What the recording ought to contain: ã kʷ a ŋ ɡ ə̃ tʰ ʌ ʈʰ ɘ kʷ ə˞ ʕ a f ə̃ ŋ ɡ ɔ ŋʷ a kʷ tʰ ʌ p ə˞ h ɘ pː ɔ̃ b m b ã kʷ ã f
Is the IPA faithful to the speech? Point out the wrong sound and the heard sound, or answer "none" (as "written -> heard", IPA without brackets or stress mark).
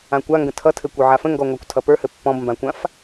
ʈʰ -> tʰ